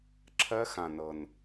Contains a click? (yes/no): yes